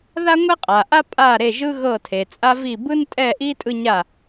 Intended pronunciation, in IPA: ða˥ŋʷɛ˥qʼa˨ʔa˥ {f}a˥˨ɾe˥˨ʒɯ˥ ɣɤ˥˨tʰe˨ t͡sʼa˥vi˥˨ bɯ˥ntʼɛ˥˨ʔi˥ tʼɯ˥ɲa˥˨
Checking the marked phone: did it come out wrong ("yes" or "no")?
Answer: yes